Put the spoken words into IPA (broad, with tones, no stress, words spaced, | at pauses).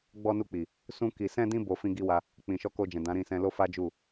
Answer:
ɡ͡bɔ˧nu˧k͡pi˨ | sũ˧ ki˨sɛ̃˧dĩ˧ bo˧fĩ˦ɡi˦ wa˧ | k͡pĩ˨ʃɔ˧ko˧d͡ʒɛ̃˨ dã˨˦ɾĩ˦˨sɛ̃˧ lo˦fa˦d͡ʒu˦˨